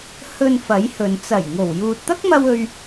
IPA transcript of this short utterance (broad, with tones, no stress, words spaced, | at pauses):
hɵ˧n fɐ˨˥jhɵ˨n t͡sɐ˨˩j ŋo˨˩w juː˨t̚t̪ɐ˥k̚mɐ˧w ɵ˧ɥ